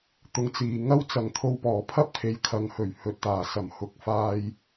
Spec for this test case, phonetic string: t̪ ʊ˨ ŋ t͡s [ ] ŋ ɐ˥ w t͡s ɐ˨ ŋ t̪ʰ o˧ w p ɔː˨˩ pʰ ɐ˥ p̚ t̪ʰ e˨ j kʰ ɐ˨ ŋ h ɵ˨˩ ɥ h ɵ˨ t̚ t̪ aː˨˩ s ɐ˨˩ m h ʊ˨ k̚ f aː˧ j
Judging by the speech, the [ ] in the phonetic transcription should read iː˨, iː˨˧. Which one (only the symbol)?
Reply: iː˨